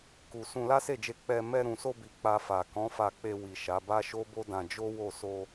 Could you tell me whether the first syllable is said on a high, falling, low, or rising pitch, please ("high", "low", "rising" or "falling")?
low